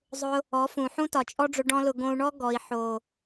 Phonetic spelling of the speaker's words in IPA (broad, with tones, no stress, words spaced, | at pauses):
zˤʊ˧ | ɔ˨˦fũ˨ħũ˦ tɒ˨t͡ʃʼɔ˦ɖ͡ʐʊ˧ ɖɔ̃˦lʊ˧ ɡõ˧u̯ɳɔ˦ ɡɔ˨i̯ħo˨